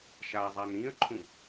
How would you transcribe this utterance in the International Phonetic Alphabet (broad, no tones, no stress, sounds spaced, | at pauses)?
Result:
ʃ a zˤ a n ĩ ə̯ ǃʰ ũ